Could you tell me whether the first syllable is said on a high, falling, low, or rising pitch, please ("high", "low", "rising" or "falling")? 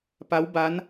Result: rising